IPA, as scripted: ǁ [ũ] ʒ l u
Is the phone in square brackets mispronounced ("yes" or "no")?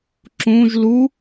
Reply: no